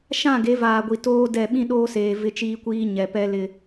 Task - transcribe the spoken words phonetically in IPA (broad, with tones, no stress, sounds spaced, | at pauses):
ʃ ã˦˨ ɡ e˨˦ v aː˨ ɡʷ i˨ t oː˦ d ɛ˦˨ ɓ ĩ˦ ɗ oː˦ s eː˨ v ɪ˦ t͡ʃ iː˦ kʷ iː˦ ɲ ɛ˨ p ɛ˦ l ɪ˦